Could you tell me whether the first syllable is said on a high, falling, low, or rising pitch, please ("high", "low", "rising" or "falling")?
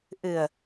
low